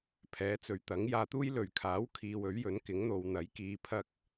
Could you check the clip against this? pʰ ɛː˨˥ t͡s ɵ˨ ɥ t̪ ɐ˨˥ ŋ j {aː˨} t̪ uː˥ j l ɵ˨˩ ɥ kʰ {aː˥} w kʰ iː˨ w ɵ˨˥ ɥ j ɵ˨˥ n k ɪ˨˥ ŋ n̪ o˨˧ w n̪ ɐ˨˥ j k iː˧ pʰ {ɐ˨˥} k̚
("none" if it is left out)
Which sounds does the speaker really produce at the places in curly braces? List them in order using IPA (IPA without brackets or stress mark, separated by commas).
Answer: aː˨, aː˨˥, ɐ˥